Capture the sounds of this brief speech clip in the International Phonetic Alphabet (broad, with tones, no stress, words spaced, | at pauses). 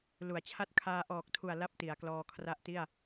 lu˩˦a̯t͡ɕʰa˦˥t̚ kʰaː˧ʔɔː˨˩k̚tʰu˨˩a̯ la˥˩p̚ti˩˦a̯klɔː˧ kʰra˦˥ʔti˥˩a̯